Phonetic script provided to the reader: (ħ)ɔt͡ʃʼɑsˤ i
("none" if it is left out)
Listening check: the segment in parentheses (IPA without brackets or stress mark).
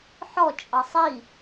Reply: ħ